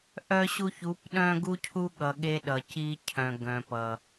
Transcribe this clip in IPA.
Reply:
ʔ œ˦ ɕ u˦ ç u˨˦ p ɗ œ̃˦ ɡ u˦ cʰ u˦ ɠ ʌ˨ ɠ e˦ ɗ ʌ˨ c i˦ cʰ œ̃˨ ɡ œ̃˨ p ʌ˨

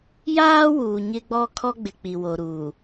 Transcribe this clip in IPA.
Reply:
j aː˦ w uː˨ ɲ ɪ˦ ɡ͡b ɔ˦ kʰ ɔ˦ ɡ͡b ɪ˨ k͡p i˨ w o˨ ɾ uː˨

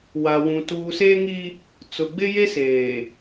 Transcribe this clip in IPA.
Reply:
w a˨ w ũ˨ t uː˨ s eː˦ ŋ i˦ | t͡s ʊ˨ ɡ͡b ɪ˦ j e˦ s eː˨

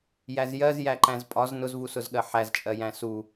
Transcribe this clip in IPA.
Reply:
j æ z j ɜ z j æ ǃ æ̃ z pʼ ɒ z n ʊ z v u s ʊ z ɠ ɜ ħ æ z t͡ʃʼ ɜ j æ̃ s u

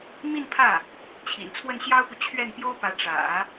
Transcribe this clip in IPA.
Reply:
m i˥˧ n pʰ ä˥˩ | t͡ɕʰ ḭ˨˩ n t͡sʰ w ə˥˩ n ɕ j ɑ˥ ʊ̯ p u˨ t͡ɕʰ ɥ ɛ˥˩ n p j o˥ ʊ̯ p ä˧˥ ʈ͡ʂ ä̰˨˩˦

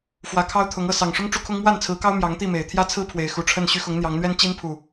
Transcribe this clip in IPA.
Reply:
f w ä˨˦ kʰ ɑ˦ ʊ̯ t̪ʰ ʊ˨˦ ŋ ɤ˥˨ s ɑ˨˩ ŋ ʂ ʊ˦ ŋ ʈ͡ʂ u˦ kʰ ʊ˦ ŋ m w a˥˨ n t͡sʰ ɹ̩˨˦ k ɑ˦ ʊ̯ m j ɑ˨˦ ŋ t̪ i˥˨ m e˨˩ ɪ̯ t̪ʰ j ä˦ t͡sʰ ɹ̩˦ pʰ w e˨˦ ɪ̯ x u˨˩ ʈ͡ʂʰ ə˥˨ n ɕ y˦ x ʊ˨˦ ŋ n̪ j ɑ˨˦ ŋ n̪ ɥ ɛ˦ n t͡ɕ i˦ n pʰ u˨˩

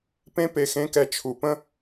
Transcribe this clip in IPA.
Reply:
p ẽ˥ p e˧ x ẽ˧˥ k ɛ˧ t͡ʃʰ u˨˩ p ə̃˥

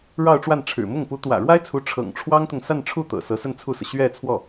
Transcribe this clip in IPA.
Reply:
ɻ ɑ˥˧ ʊ̯ ʈ͡ʂ w a˥˩ n ʈ͡ʂʰ ɻ̩˨˩ m ʊ˥˩ ŋ p u˧˥ t̪ w ä̰˨˩ ɻ w a˥ ɪ̯ t͡sʰ u˧˥ ʈ͡ʂʰ ɤ̰˨˩ ŋ ʈ͡ʂʰ w ɑ˥ ŋ t̪ ʊ˨ ŋ s a˥˧ n ʈ͡ʂʰ u˥˩ t̪ ɤ̰˨˩ s ɤ˧˥ s ə˥˧ n t͡sʰ u˥˩ s ɤ˩ ɕ ɥ ɛ˥˧ t͡sʰ w ɔ˥˩

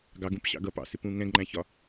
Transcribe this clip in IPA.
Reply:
ɡ ɑ ɡ ũ p ɕ ɑ̰ ɡ ʌ p ɑ̰ s ɪ p ũ ŋ ɛ̃ ɡ ŋ͡ǃ æ̃ ç ɒ

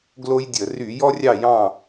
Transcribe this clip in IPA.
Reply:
ɡ l o˦ j dʲ ə˧˩˧ r y˧˩˧ j ɔ˦ rʲ ɑ˦˨ j ɑ̃˦˨

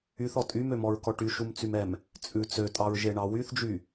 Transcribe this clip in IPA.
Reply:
y θ ɔ tʼ y m ø m ɔ ɹ k ɔ ʈ y ʃ u m t͡s y m ɛ m | t͡sʼ ʉ t͡s ø tʼ ɑ ɹ ʒ e ɳ ɑ w y θ d͡ʒ y

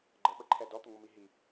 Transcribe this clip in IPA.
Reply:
ɡ͡ǃ ə ɓ ə ǃʰ ɛ d ɔ t̪ ə ŋʷ ə m i ɦ i

